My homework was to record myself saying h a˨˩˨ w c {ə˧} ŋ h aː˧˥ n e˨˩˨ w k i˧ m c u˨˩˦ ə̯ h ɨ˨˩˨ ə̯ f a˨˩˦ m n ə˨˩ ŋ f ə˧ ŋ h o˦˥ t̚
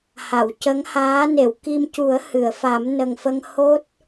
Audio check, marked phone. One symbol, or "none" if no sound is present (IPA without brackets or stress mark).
ə˧˥